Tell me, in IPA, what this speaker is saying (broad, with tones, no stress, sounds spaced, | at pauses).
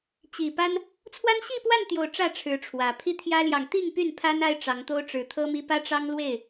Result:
t͡ɕ i˨˩ p a˦ n | t͡sʰ w a˦ n ɕ i˥˨ p w a˥˨ n t̪ j o˨˩ ʊ̯ ʈ͡ʂ ä˥˨ ʈ͡ʂʰ ɻ̩˨˦ ʈ͡ʂʰ w ä˨˩ pʰ i˦ t̪ʰ j ä˦ l j ɑ˨ ŋ t̪ i˥˨ ŋ p y˥˨ n pʰ a˦ n a˦ ɪ̯ ʈ͡ʂ ɑ˨˦ ŋ t̪ o˦ ʊ̯ ʈ͡ʂ ɻ̩˨˦ t̪ʰ ɤ˦ m i˦ p ä˦ ʈ͡ʂ ɑ˦ ŋ l w e˥˨ ɪ̯